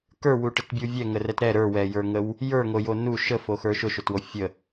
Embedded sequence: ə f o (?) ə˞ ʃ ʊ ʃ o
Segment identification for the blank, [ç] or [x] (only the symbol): x